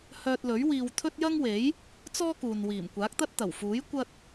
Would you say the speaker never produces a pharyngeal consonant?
yes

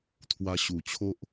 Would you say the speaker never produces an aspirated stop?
no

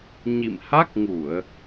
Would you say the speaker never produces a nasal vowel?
yes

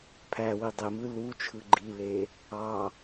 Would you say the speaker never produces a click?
no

